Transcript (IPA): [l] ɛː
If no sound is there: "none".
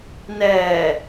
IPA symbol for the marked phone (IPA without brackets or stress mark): n